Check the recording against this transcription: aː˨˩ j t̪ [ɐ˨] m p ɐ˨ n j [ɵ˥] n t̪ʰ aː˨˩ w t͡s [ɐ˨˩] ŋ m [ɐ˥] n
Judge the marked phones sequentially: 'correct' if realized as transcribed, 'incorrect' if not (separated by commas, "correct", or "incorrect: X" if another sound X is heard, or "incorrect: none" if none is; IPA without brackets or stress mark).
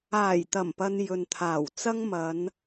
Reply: incorrect: ɐ˨˩, incorrect: ɵ˨, incorrect: ɐ˥, incorrect: ɐ˨˧